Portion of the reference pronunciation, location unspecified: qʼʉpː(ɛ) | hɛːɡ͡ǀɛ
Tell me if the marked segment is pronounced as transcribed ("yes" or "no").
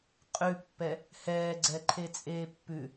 yes